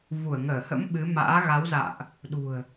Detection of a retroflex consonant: absent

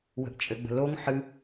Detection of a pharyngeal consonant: present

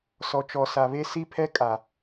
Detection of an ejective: present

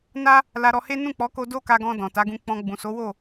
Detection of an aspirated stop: absent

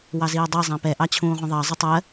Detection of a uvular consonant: present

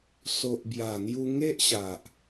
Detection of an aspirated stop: absent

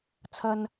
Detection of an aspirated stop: present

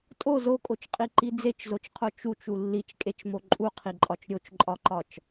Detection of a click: present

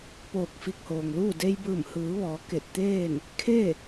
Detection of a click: absent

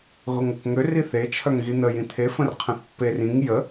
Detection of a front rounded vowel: present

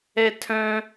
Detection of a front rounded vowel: present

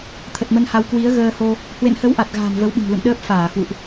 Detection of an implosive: present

